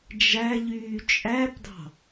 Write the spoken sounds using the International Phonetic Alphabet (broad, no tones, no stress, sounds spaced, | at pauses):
d͡ʒ æ ʎ yː t͡ʃʼ æ p d ɑ̤